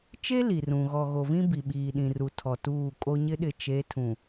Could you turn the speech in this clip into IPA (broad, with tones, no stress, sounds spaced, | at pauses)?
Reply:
t͡ʃ e˦ l i˨ r ũ˨ ɣ ɔ˨ ɣ o˨ v ĩ˦ b i˨ ɓ iː˨ ɗ ĩ˨ r u˨ tʰ ɔ˨ t uː˦˨ kʼ o˦ ɲ ɪ˦ ɗ ɪ˨ t͡ʃ e˨˦ tʰ ũ˨